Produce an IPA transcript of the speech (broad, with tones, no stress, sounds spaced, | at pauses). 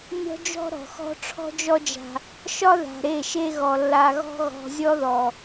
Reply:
nʲ ɔ̤˦ d͡ʒ ɔ̤˦ ɾ ɔ̤˨ x ɔ̤˦ ʈ͡ʂʰ ɔ̤˦ d͡ʒ ɔ˦ d͡ʒ a̤˧ | ʃ ɒ˦ ð a̤˨ ɾ e˦˨ ʃ e˦ ɣ ɔ˨ lː a˧ ɣ ɔ̤˦ ɣ ɔ̤˧ zʲ ɔ˦ ð ɔ˨